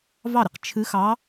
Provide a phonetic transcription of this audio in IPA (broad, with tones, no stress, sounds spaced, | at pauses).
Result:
v ɑ˥˩ ɾ i˧ q t͡ʃʰ ɨ˧˥ x ɑ˧˥